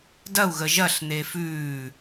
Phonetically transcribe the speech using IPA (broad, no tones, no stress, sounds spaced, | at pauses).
d ɐ u̯ ɣ ə ʒ ɐ ɬ n̪ e f ʉː